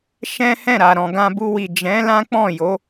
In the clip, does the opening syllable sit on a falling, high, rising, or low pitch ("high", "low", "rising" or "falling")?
high